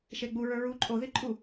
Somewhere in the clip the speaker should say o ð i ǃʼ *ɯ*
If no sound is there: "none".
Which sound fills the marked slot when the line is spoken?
u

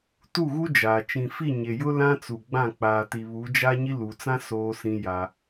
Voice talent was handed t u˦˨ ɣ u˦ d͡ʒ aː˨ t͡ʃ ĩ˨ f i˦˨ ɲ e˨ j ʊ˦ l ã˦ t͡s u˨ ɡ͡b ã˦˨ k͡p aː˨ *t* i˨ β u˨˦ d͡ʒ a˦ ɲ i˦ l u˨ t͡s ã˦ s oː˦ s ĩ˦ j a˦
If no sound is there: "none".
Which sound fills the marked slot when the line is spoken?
t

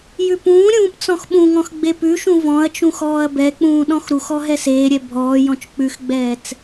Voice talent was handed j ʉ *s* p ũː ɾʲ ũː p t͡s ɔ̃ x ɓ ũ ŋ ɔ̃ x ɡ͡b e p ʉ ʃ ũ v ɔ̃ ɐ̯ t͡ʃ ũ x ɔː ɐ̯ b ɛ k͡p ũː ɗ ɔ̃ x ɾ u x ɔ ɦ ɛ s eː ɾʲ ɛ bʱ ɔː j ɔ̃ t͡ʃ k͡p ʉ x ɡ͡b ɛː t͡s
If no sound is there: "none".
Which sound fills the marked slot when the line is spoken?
none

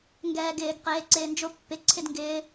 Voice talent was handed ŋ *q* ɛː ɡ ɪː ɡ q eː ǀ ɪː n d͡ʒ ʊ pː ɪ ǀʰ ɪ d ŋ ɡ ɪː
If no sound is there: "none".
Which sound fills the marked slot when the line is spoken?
ɡ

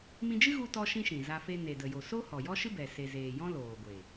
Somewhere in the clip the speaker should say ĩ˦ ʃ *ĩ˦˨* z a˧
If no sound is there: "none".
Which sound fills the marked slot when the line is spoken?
ĩ˨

